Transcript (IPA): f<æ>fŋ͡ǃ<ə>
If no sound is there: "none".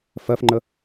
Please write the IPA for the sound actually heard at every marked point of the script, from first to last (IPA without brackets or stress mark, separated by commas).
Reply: ɜ, ə